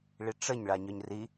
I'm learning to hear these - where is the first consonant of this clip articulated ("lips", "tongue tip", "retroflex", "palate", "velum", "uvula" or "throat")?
retroflex